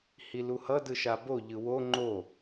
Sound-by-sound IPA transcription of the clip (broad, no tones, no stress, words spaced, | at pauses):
hiluhʌ dɯʃabo ʎɯwo ŋ͡ǃo